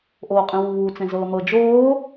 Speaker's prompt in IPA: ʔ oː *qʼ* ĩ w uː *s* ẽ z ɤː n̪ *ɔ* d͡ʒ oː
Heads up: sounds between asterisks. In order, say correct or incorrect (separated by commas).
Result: correct, incorrect, incorrect